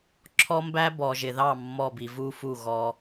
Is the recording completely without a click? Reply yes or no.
no